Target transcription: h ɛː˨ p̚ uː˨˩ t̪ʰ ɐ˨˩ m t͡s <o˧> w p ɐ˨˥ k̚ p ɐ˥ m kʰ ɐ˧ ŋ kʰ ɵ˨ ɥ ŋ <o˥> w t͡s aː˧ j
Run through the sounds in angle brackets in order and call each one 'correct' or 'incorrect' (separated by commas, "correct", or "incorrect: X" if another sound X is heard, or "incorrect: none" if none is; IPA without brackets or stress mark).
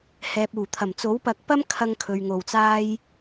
incorrect: o˨˥, incorrect: o˨˩